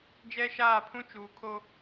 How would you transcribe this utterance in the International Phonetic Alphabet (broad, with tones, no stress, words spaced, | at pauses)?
d͡ʒɛ˦ʃaː˦˨pʰũ˦ t͡ʃuː˨kʰo˦